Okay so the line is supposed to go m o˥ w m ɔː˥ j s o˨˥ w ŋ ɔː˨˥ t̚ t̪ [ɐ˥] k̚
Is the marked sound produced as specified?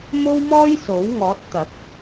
no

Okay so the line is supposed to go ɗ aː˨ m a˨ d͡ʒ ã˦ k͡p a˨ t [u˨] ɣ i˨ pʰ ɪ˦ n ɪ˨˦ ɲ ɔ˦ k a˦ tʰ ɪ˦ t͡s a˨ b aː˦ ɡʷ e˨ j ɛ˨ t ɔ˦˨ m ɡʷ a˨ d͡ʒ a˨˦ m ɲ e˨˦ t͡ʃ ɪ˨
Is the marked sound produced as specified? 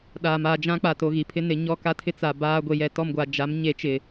no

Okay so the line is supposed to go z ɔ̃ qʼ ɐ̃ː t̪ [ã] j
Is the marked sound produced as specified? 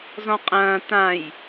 yes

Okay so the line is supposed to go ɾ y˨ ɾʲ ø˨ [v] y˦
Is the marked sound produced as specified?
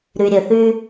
no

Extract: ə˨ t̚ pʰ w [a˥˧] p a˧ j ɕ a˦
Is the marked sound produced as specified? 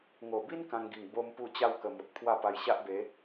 yes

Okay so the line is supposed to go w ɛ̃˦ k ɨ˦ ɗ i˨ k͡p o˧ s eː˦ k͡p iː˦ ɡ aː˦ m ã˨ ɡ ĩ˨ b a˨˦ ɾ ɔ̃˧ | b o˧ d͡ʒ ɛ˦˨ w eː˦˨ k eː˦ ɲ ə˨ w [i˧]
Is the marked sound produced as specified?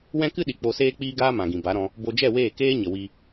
yes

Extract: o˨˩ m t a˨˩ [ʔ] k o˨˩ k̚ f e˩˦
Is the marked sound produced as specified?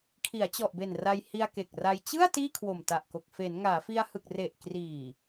yes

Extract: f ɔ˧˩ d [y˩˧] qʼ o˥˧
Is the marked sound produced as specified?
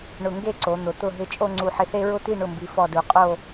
no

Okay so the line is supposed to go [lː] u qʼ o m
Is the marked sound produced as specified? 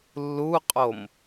yes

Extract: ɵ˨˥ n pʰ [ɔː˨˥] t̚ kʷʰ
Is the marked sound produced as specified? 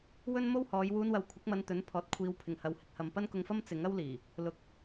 yes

